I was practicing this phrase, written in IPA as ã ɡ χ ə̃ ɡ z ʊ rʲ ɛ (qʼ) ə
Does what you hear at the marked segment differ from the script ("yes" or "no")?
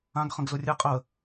no